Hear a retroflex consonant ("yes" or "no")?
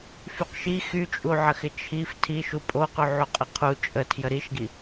no